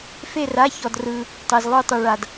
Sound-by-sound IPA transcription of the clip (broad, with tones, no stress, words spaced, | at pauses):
fe˥˧ra˧˥˧çɔ˧drɯ˧ | tˤe˧zlˠu˥˧tˤɯ˧ ɭa˧d